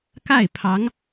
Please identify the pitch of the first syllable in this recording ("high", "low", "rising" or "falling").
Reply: falling